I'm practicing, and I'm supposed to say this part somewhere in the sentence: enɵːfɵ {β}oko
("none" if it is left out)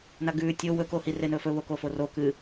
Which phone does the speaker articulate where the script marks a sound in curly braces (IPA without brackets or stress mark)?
β